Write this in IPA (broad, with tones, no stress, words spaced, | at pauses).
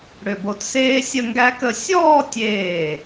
ɽʏ˧˩bo˧tseː˥ sʲə˥˧ŋɡæ˥kə˥˧ sʲɔː˥˧tʲeː˧˩